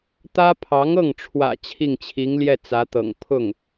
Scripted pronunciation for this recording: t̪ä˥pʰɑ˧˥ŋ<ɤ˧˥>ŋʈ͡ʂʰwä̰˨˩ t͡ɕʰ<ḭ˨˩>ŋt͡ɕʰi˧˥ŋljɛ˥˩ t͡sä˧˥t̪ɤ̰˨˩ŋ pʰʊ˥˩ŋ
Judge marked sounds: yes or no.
no, no

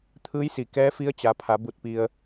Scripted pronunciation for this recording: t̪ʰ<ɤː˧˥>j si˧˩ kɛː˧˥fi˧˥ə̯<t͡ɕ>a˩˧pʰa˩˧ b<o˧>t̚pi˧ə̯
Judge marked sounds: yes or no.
no, yes, no

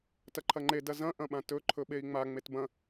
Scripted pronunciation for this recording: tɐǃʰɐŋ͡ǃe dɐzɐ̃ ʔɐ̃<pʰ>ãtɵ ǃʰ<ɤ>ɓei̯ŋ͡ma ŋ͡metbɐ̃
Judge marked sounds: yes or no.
no, no

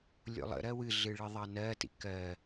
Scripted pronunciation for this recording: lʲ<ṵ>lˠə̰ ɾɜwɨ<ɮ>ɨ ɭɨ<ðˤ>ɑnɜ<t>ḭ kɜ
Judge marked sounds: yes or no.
no, yes, yes, yes

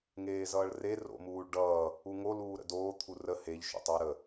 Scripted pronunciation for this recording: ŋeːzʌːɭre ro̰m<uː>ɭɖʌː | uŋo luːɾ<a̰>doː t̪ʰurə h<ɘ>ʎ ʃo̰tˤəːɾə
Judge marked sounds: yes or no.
yes, no, no

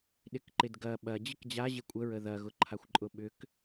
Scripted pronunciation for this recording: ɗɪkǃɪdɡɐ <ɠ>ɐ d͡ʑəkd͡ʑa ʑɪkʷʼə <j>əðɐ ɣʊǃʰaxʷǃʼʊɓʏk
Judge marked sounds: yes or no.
no, no

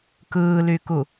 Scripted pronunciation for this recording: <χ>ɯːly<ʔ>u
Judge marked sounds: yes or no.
no, no

